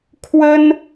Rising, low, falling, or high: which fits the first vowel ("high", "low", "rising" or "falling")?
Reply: high